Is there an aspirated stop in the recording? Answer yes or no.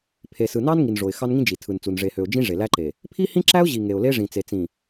yes